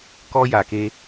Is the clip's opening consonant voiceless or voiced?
voiceless